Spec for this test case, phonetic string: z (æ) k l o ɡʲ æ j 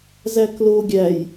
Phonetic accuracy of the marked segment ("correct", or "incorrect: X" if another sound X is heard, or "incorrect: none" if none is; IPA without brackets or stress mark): correct